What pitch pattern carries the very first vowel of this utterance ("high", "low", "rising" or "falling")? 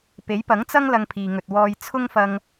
rising